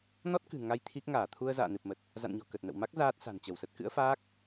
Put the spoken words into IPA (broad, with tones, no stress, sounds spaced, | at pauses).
n ɔ˦˥ t̚ k ɨ̤˨˩ ŋ a˧ j t̪ʰ i˦˥ k̚ ŋ aː˧˩ t̪ʰ u˧ ə̯ z a̰ː˧˨ n ɨ˨˩ p̚ m ə˨˩ t̚ | z a̰˧˨ n ɲ ɔ̤˨˩ k ə˨˩ t̚ n ə̰˧˨ w m a˦˥ k̚ z aː˦˥ t̚ s a̤˨˩ n t͡ɕ ə˧˩ w s ə˦˥ t̚ k ɨ̰˧˥ ə̯ f aː˦˥ k̚